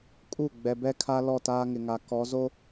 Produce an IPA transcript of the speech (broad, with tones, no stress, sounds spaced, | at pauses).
kʼ u˦˨ ɡ͡b ɛ˨ b ɛ˦ kʰ a˦ l ɔ˦˨ t aː˦ ŋ ɪ˨ ŋ a˨ k ɔ˨˦ z o˦